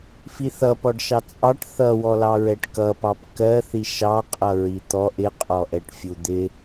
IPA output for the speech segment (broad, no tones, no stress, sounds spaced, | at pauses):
f i θ ʌ p ɔ ɖ ʃ ɑ t͡sʼ ɑ ʈ θ ʌ w ɔ l ɑ ɹ ɛ ʈ k ʌ p ɑ p k ɜ θ i ʃ ɑ qʼ ʌ ɹ i t̪ ɔ ʔ ɪ qʼ ɔ ʔ ɛ ʈ fʲ u d̪ ɪ